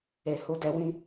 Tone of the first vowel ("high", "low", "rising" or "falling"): low